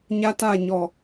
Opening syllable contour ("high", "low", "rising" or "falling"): high